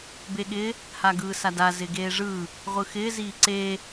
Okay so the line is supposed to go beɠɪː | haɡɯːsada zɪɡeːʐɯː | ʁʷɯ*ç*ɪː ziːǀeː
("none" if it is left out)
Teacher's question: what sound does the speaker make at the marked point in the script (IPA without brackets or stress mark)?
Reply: x